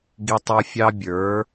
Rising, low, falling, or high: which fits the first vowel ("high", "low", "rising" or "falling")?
high